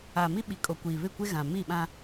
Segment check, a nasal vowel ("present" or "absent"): present